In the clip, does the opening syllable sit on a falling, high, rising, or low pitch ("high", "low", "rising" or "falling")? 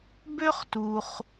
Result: high